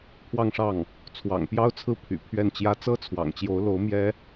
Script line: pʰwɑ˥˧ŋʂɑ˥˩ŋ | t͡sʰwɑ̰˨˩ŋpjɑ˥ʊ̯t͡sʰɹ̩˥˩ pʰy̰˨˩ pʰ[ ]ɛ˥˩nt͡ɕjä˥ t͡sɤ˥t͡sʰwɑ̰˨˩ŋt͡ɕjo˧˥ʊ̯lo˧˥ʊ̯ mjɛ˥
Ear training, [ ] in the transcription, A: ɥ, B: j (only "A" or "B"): A